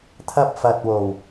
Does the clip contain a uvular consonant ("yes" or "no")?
no